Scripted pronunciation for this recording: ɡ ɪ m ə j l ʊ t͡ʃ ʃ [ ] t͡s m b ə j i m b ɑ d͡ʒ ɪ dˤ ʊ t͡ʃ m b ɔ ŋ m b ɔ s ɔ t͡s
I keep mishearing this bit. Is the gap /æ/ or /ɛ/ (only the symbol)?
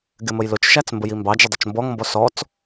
æ